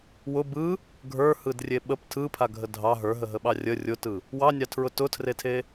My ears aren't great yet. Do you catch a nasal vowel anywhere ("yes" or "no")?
no